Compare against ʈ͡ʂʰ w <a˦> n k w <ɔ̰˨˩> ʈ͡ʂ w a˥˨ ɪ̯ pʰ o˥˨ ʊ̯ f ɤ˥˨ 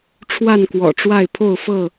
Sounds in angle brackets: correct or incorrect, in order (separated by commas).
incorrect, correct